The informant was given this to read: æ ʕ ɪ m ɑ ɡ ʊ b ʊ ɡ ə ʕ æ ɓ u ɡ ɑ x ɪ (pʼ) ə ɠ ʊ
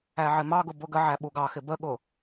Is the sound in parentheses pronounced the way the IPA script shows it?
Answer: no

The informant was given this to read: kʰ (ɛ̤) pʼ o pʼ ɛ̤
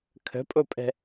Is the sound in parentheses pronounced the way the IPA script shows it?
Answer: no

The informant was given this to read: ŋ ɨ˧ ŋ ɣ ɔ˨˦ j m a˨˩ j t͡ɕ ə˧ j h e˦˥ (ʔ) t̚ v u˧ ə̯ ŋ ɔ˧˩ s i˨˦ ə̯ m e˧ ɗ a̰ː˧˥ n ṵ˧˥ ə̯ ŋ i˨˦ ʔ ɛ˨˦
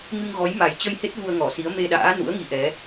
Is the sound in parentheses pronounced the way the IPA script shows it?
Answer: no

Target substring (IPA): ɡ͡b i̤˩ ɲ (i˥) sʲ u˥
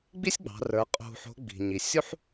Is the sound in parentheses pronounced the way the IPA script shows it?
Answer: no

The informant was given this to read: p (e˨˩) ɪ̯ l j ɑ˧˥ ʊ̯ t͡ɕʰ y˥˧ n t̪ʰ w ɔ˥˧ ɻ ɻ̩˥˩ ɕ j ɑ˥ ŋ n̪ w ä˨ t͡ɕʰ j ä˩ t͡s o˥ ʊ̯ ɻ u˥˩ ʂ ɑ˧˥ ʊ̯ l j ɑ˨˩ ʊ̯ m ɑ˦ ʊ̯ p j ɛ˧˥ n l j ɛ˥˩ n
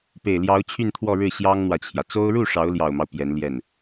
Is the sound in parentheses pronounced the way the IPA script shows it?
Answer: yes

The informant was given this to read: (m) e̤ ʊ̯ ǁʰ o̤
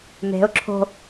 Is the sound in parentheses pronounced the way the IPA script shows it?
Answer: yes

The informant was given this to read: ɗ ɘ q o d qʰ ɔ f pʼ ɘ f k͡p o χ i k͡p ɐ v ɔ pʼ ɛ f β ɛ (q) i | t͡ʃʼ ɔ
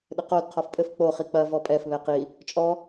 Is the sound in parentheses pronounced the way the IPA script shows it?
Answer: yes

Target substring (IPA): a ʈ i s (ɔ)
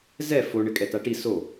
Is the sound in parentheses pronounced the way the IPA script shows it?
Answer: no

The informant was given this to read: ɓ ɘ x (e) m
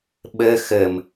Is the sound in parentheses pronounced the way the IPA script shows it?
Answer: no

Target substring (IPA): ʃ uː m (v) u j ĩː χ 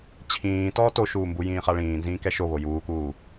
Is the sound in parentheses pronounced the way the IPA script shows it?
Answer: no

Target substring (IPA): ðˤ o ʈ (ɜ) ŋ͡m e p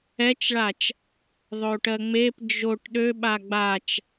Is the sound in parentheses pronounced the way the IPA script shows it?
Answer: yes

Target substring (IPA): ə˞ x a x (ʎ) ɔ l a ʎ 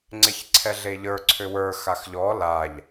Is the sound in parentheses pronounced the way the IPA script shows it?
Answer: yes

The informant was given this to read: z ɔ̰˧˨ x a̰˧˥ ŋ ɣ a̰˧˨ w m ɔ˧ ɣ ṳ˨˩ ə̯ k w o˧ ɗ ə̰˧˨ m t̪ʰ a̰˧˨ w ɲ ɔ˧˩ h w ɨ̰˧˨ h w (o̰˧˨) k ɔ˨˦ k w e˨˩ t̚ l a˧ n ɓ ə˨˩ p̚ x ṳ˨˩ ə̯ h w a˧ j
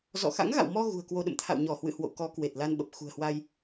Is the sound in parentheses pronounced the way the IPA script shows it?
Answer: yes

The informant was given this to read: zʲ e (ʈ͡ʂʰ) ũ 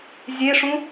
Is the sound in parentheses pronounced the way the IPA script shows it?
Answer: no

